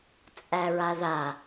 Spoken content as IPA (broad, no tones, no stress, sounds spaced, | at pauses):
t͡sʼ æ ɹ a ð a